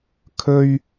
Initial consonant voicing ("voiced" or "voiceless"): voiceless